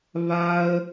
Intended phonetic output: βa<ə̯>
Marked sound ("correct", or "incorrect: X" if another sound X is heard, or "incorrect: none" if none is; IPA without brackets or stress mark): correct